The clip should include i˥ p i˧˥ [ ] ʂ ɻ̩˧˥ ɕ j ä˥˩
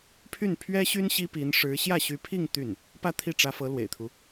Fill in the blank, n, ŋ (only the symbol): n